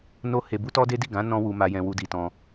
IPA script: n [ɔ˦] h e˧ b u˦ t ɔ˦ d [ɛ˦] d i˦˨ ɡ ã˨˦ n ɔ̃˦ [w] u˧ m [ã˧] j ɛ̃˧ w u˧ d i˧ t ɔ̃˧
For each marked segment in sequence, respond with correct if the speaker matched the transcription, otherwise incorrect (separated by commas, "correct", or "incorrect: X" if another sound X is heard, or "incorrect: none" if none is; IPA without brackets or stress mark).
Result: incorrect: o˦, incorrect: e˦, correct, incorrect: a˧